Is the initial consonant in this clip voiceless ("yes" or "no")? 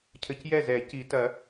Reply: yes